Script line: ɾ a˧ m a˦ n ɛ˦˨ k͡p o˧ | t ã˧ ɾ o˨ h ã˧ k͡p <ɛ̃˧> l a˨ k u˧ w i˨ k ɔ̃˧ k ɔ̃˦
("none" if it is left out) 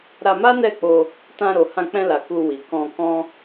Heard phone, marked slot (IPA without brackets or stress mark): ɛ̃˧